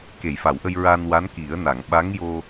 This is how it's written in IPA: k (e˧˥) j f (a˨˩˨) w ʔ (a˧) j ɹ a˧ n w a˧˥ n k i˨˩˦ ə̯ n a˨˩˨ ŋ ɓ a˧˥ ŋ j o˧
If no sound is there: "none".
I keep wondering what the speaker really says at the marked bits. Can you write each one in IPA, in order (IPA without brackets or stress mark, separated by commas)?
e˨˩˨, a˨˩˨, ə˧